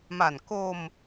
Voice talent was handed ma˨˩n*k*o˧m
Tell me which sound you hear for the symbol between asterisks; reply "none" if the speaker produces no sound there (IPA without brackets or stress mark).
k